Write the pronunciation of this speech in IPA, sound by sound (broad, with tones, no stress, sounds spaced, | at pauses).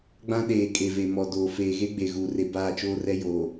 ɡ͡b ã˦ ɗ eː˨ kʼ e˨ v e˨ m ɔ˨ d oː˨ f eː˨ ɣ e˦ ɡ͡b e˨ ɣ uː˨ r e˨ b aː˦˨ t͡ʃ oː˦ r ɛ˦ j oː˨